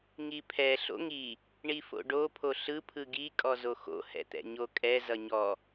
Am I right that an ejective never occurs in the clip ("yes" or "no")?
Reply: no